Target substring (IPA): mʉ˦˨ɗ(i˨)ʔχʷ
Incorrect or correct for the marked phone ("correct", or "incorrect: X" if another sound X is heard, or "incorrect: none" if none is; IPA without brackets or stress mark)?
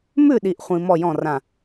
correct